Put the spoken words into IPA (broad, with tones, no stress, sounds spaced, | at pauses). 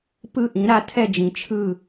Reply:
p ɯ˦˥ ʔ ĩ˨˩˦ ɾ a˥˨ tʰ ɛ˥˨ d͡ʒ ĩ˨˩ t͡ʃʰ ɯ˥˨